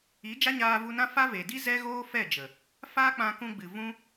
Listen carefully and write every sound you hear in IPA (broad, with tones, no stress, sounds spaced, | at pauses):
i˨˦ d͡ʒ a˦ ɲ aː˧ v u˧ n ã˦ f a˦ v e˨ d i˦ z ɛ˦ ɣ oː˦ f ɛ˦˨ d͡ʒ ə˨ | f aː˦ k͡p ã˧ k ũ˧ ɡ͡b ɨ˨ v ũ˦